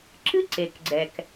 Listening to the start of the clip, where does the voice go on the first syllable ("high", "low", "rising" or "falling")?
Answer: high